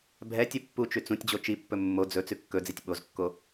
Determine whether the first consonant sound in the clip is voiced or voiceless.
voiced